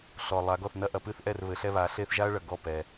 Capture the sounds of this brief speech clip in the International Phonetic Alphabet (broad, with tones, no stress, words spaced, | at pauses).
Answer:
ɬɔ˨ lˠa˨˦ɡɔ˥˩θ nɐ˥ʔɐ˨˦ pɨ˥˧θʔɛ˥˩r βɘ˨˦ɬɛ˥˧βa˨˦ ɬe˥˧θʒa˥ɐ̯ɭɐ˨ ɡɔ˥˩pɛ˨